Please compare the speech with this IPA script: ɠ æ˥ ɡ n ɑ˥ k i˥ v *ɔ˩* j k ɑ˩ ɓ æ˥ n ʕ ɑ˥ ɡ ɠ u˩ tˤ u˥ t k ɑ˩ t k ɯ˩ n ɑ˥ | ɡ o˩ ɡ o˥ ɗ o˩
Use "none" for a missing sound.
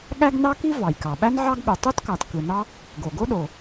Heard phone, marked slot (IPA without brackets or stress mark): ɑ˩